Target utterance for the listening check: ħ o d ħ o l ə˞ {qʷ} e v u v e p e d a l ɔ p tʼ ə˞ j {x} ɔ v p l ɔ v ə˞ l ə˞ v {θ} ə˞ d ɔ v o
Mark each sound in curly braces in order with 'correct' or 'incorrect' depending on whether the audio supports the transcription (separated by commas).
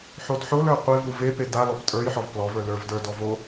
correct, incorrect, incorrect